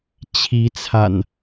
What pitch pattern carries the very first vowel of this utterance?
rising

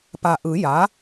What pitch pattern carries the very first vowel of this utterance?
low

